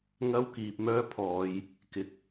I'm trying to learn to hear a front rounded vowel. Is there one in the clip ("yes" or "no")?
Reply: yes